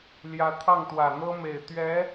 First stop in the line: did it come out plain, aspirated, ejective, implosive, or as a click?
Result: aspirated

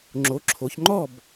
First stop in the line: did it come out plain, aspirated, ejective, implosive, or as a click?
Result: click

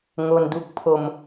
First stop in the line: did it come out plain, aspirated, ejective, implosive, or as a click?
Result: plain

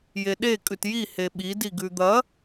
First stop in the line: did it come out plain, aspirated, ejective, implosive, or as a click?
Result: implosive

